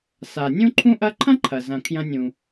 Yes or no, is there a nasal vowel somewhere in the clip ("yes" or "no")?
yes